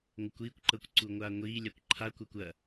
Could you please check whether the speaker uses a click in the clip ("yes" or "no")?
yes